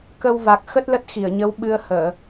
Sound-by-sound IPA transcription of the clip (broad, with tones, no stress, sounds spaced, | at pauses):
k ə˧ w v a˨˩ k̚ x ə˦˥ t̚ l ə˦˥ t̚ x i˧˩ ə̯ ɲ ə˨˦ w ɓ ɨ˧ ə̯ h əː˧˩˨